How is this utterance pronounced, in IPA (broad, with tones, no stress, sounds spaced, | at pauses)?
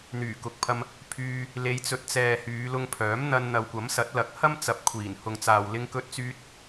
n̪ yː˨˩ k ʊ˨˥ k̚ pʰ ɐ˧ m | pʰ yː˧ | l e˨˧ j t͡s ɵ˨ t̚ t͡s ɛː˨ h yː˨˧ l ʊ˧ ŋ pʰ œː˨˥ m n̪ ɐ˧ n n̪ ɐ˨ w kʷ ɐ˨˥ m s ɐ˨˥ t̚ l ɐ˨˥ k̚ h ɐ˥ m t͡s ɐ˨ p̚ kʷʰ iː˨˩ n h ʊ˨ ŋ t͡s aː˨ w l ɪ˧ ŋ k ɵ˧ t̚ t͡s yː˧ t̚